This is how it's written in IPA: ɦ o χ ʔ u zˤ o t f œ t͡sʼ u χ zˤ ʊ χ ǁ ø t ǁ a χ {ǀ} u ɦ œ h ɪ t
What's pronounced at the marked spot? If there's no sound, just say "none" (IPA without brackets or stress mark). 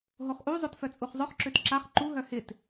ǃ